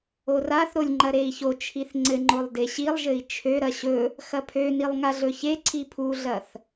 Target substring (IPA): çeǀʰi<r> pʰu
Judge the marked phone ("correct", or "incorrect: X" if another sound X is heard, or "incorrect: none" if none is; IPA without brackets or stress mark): incorrect: none